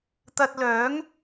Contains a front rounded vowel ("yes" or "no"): yes